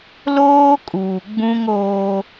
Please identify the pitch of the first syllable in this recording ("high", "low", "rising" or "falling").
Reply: high